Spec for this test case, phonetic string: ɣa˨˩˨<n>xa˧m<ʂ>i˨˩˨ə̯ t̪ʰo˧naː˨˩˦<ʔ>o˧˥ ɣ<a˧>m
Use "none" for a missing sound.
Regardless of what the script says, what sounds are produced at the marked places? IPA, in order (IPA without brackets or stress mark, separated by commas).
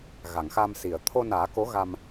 ŋ, s, k, a˧